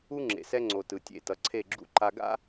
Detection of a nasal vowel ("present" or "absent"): absent